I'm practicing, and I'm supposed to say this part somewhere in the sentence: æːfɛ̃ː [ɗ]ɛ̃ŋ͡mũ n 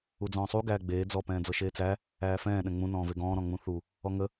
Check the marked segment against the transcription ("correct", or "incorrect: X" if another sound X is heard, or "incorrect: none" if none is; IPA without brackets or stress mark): correct